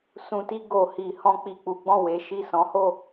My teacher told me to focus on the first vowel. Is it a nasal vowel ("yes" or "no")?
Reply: yes